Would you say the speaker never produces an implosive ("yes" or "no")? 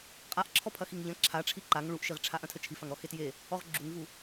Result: yes